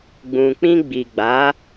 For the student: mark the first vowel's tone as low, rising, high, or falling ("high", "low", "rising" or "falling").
low